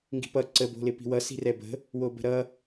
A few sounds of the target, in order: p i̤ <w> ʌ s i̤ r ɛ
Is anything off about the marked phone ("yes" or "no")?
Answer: no